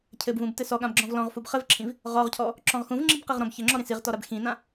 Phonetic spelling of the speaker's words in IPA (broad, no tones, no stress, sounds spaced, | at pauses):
cʰ ɘ b v ũ b t ɘ s ɔ ɠ ã b ɡ͡ǁ ɔ̃ v l ɔ̃ ʁ f u b χ ɘ v ǁʰ ĩ v | ʁ ɔ ʁ cʰ ɔ | ǁ ɔ̃ ʁ x ũ v ŋ͡ǁ i b q i ʁ ɾ ɔ̃ b ç ɘ ŋ͡ǁ ɔ ɾ ĩ s i ʁ t ɔ ɾ a b x ĩ n ã